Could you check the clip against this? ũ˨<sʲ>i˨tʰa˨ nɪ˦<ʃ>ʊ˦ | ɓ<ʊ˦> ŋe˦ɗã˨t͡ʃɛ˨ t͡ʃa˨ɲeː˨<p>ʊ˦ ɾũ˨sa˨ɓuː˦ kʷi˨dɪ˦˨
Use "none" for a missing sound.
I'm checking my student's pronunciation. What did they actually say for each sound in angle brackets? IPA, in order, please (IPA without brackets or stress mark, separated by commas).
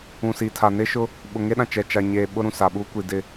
s, ʃ, ʊ˨, ɓ